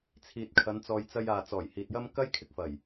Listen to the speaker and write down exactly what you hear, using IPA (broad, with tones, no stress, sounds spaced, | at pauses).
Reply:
t͡sʰ iː˨ t̚ kʰ ɐ˨˧ n t͡s ɔː˧ j t͡s ɐ˧ j aː˨ t͡s ɔː˨˩ j h iː˨ t̚ j ɐ˥ m k ɐ˥ j kʰ ɪ˧ k̚ f ɐ˨˩ j